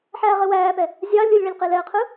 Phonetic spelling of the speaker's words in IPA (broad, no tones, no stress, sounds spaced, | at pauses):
ħ æː ʁ ɘ w æː p ɛ | zʲ ɑ lʲ ɯ lʲ ɭ e lʲ q e l ɛ ə̯ qʰ ɯ